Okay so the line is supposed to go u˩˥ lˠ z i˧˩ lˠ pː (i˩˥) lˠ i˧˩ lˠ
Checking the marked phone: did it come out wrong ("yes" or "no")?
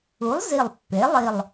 yes